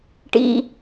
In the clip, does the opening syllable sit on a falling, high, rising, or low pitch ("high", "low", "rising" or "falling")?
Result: high